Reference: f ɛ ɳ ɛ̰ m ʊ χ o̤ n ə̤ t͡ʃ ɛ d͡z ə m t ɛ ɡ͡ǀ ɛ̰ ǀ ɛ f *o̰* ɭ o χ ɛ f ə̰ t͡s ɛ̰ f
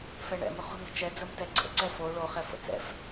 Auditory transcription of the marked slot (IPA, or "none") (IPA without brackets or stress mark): o